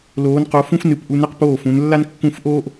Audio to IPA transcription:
l oː˨˦ n q o˨˦ f ũ˥ f n ɨ˨˦ p ʔ u˨˦ n ɛ˥ q p oː˥˨ f ũ˨˦ n lː a˥ n kː ũ˥˨ f ʔ oː˥ ʔ

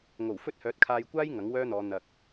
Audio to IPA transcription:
ŋ o˨˩ w f ɵ˥ t̚ h œː˨˥ t̚ kʰ aː˧ j kʷ aː˥ j ŋ ɐ˨˥ ŋ w œː˥ n̪ ɔː˨˧ n̪ ɐ˨ k̚

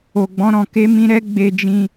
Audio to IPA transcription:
o˧ ɡ͡b ɔ̃˦ ɾ ɔ̃˧ k e˦ m ĩ˦ ɾ ɛ˦ ɡ͡b e˧ d͡ʒ ĩ˧

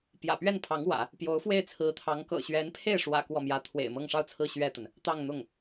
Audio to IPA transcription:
p j ä̰˨˩ p ɥ ɛ˥˩ n pʰ ɑ˧˥ ŋ w ä̰˨˩˦ | p j o˧˥ ʊ̯ f w e˥˩ ɪ̯ t͡sʰ ɹ̩˧˥ t̪ʰ ɑ˧˥ ŋ k ɤ̰˨˩ ɕ ɥ ɛ˧˥ n pʰ e˥˩ ɪ̯ ʂ w ä̰˨˩ k w ɔ˥˩ m j ä˥ t̪ʰ w ḛ˨˩ ɪ̯ m ɤ˥˧ ŋ ʂ ɑ˥˧ ʊ̯ t͡sʰ ɹ̩˥˧ ɕ ɥ ɛ˥˩ t̪ ə˩ n | t̪ ɑ˥˧ ŋ n̪ ʊ˥˩ ŋ

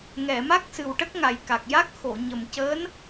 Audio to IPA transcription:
ŋ ɛ˨˩˨ m a˦˥ k̚ s ɨ˨˩ w ʈ ə˦˥ k̚ ŋ a˨˩ j k a˨˩ k̚ j a˦˥ k̚ x o˨˩˨ ɲ ə˨˩ m c əː˧˥ n

